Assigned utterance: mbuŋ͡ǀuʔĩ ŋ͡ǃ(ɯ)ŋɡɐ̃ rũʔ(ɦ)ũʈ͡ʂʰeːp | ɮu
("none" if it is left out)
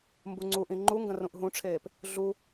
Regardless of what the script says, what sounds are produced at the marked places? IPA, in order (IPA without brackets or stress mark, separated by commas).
u, ɦ